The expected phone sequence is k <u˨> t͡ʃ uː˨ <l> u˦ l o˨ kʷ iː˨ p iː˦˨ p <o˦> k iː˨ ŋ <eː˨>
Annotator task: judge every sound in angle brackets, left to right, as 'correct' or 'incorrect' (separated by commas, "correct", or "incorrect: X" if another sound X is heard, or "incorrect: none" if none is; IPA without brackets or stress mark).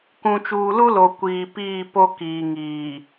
incorrect: ũ˨, correct, correct, incorrect: iː˨